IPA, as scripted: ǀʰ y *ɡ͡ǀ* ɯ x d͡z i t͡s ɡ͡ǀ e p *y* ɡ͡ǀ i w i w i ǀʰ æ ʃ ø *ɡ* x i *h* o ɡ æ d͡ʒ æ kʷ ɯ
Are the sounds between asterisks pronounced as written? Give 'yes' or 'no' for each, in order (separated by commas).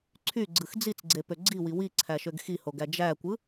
yes, no, yes, yes